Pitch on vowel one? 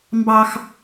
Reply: high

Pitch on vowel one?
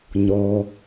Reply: low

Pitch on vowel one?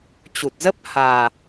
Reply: low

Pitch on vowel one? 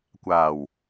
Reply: low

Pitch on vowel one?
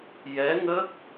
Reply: rising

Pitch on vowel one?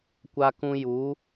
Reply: high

